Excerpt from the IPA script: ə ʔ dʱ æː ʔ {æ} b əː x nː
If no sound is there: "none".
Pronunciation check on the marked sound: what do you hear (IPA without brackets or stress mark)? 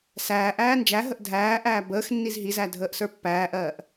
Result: æː